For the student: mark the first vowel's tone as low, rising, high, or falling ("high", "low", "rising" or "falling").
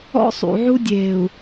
high